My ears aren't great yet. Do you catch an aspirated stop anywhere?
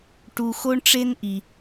no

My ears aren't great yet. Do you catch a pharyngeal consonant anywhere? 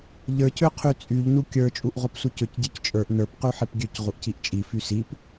yes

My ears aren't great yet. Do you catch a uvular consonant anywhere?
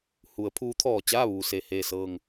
no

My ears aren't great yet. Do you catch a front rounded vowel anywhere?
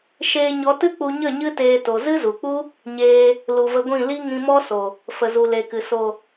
no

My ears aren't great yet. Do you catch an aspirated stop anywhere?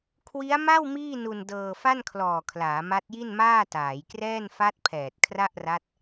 yes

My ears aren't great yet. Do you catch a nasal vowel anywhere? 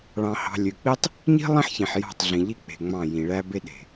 yes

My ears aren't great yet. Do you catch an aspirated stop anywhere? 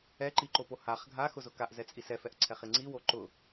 yes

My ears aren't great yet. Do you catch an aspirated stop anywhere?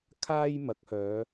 yes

